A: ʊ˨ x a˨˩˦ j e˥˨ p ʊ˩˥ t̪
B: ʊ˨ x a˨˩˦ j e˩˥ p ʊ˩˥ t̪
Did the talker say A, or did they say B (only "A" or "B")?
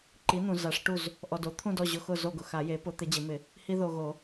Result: B